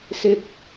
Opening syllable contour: low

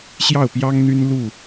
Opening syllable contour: falling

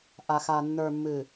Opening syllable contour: low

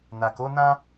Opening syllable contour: low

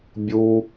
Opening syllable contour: high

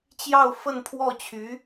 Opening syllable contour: falling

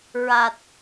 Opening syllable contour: low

